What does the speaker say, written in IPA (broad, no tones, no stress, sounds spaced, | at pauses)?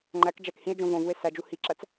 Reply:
ŋ͡ǃ æ k d͡ʒ æ k h ĩ e̯ d͡ʒ õ v õ v u e̯ s æ d͡ʒ u h i ǁ æ t͡s